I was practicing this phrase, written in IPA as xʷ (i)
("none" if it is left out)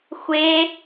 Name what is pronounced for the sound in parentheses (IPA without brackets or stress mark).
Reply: e